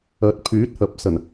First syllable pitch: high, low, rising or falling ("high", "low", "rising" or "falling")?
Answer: rising